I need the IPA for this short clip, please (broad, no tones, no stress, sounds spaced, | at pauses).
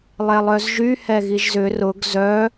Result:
lˠ ɛ lˠ œ z ʒ y h ɛ ɣ i ʒ z ʏ r ʊ ɡ z œ